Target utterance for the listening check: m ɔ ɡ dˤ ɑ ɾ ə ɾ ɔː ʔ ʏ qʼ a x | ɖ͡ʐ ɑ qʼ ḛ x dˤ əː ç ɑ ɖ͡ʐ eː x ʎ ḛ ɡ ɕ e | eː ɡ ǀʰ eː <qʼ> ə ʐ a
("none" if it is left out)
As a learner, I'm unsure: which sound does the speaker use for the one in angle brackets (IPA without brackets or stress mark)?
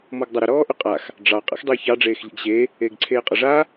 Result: qʼ